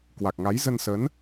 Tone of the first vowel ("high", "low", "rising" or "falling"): low